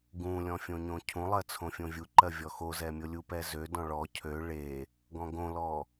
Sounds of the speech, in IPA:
ɡũlʲɔ̃fʲõɲõ cʰũlˠɜ t͡sʰõfʲõvʲuǃɜ vʲɔxozɛmʲo lʲupɛzødɔ̃ ɭɔ cʰø ɭe | ɡɔ̃ɡõlɔ

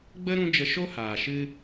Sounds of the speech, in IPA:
ɡ͡bə˦ ɾũ˦ d͡ʒə˧ʃo˦haː˨ʃɨ˧

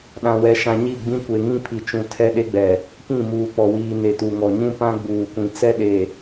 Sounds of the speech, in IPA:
ɗã˨wɛ˨ʃã˨ ɲi˦˨ɡ͡bĩ˦ kʷe˨ŋĩ˦pʰi˨t͡ʃũ˨ tʰɛ˦ɗe˦ɡ͡bɛ˨ | kĩ˦˨muː˨k͡pɔ˨wiː˨ ne˨tu˨ŋɔ˨ ɲũ˦pã˦ ɡ͡buː˨kʷĩ˨t͡sɛ˦ ɗe˨

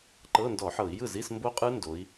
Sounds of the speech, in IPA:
ǃɤ˧˥˧ndɔ˧˩˧ħɤ˧˩˧i̯ jɯ˥˩zi˧˥˧s mbo˦˥qʼɯ˦˥ ndo˨˥i̯

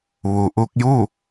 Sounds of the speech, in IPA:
ʋu˩ʔu˧k̚ju˥˨

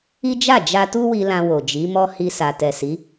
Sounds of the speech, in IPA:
i˦d͡ʒa˦˨ d͡ʒa˧tu˦wi˧ lã˧wo˨d͡ʒi˨˦mɔ˦ hi˧sa˨ tɛ˨si˨˦

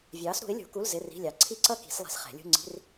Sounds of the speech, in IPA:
vʲɑː˨˥sɾṳ˨˥ɪ̯lʲṳ˨˩˦ku˧˥˧l zɪ˧˥˧ri̤˧˥˧lʲɑ˨˥ ǀʰi˥ǀʌ˥ki̤˨˩˦s lˠɛ̤˨˥sχɛ̤˨˩˦lʲṳ˧˥˧ ŋ͡ǀi̤˧˥˧r

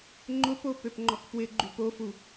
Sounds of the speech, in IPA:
ŋ͡ǃʊpo pøpŋ͡ǃɔkpwɪɡ͡ǃy pofu

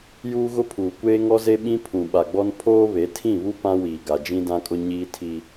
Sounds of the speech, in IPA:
juː˦ɣʊ˦pʰuː˨ kʷeː˦ŋɔ˦ze˦ ɓĩ˦pʰũ˨ɓa˨ɡ͡bɔ˦n pʰoː˦βe˨˦tʰĩ˦˨βu˦ pã˦wiː˨ ɡa˨d͡ʒĩ˦dã˦kʼʊ˦ ɲiː˦ tʰi˦

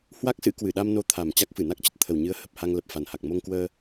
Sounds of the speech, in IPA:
hwa˦˥k̚sɨ̰˧˥ kwɨ˧˩ɗa˧m no˧ t̪ʰa˨˩m t͡ɕa˦˥k̚fɨ˧˩na˦˥k̚t͡ɕə˦˥t̚ t̪ʰə˨˩wɲɨ˨˦ə̯ hə˨˩p̚ha˧ŋlə˨˩p̚ fa˨˩nha˨˩k̚mo˧ŋkwəː˧

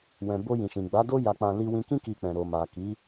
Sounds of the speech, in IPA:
wɛ̃˨bo˧jĩ˨ʃĩ˨ ɡ͡ba˨˦do˦ ja˧k͡pã˧ li˧ wĩ˧kĩ˦ ki˧k͡pɛ̃˨ ɾo˨ma˨ ki˨˦

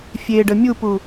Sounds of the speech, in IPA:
fʲeɖə mʲupu

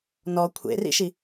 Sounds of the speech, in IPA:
nɔ kʷʰḛrḭʃi

